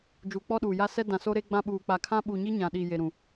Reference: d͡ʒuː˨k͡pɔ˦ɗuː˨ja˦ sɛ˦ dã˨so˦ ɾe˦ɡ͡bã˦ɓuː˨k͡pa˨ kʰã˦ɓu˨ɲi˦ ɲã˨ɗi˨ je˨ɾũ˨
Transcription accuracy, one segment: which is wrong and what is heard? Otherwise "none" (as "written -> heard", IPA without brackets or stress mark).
none